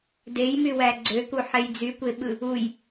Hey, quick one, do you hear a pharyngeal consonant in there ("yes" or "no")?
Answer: yes